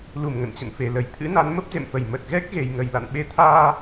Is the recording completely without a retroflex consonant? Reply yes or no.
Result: yes